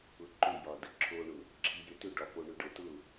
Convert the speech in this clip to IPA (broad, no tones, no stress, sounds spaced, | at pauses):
ʊ ǃ ʏ j ɒ d ə ǁʰ o ɳ ʊ | ǁʰ i j ʏ t ʏ ɖ ɒ p o ɳ ʏ ɖ ɤ t ʊ